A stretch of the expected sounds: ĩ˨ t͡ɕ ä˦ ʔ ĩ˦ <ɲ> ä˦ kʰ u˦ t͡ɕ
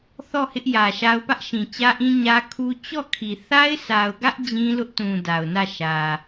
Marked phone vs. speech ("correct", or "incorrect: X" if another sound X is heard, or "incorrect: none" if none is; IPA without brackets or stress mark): correct